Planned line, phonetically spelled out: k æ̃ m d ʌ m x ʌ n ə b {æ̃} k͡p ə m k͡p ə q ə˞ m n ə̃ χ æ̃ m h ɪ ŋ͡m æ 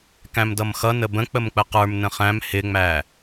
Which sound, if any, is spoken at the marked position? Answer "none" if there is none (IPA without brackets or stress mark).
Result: ə̃